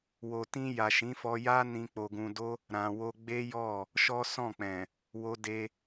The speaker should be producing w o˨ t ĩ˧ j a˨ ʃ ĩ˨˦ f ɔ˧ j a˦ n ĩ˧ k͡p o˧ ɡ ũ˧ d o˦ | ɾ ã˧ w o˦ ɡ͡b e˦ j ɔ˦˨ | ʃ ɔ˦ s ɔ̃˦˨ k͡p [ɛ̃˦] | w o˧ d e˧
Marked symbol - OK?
no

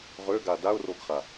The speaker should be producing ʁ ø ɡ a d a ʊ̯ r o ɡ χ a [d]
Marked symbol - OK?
no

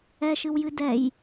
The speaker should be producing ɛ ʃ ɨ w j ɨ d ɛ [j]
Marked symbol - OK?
yes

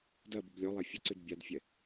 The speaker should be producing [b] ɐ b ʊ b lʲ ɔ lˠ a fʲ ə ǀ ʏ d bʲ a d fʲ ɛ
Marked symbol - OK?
no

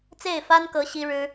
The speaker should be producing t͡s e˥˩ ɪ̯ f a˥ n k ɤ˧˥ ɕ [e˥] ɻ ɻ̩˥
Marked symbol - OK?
no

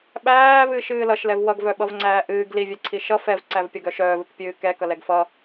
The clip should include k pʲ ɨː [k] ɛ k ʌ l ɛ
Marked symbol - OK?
yes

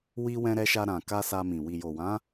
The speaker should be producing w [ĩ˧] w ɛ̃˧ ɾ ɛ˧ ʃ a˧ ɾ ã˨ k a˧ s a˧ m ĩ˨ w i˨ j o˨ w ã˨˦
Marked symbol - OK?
no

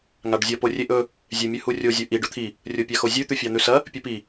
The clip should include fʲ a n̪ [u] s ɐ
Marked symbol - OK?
no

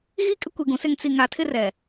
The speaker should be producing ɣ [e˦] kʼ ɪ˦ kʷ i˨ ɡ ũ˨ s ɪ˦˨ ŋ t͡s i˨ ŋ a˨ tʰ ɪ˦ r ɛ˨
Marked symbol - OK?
no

